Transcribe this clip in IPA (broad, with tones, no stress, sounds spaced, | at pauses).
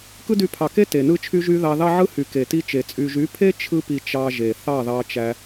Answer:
k ɯ˦ d y˧ pʰ ɑ˨ k e˦ t e˨ n ɯ˦ t͡ʃʰ y˦ ʒ y˦ ð ɑ˧ ð ɑ˦ ʕ ɯ˦ h y˨ k e˨ t i˧ t͡ʃ e˨ t͡sʼ y˨ ʒ y˨˦ pʰ e˦ t͡ʃʰ ɯ˦ p i˧ t͡ʃ ɑ˧ ʒ e˨ θ ɑ˦˨ ð ɑ˧ t͡ʃ æ˧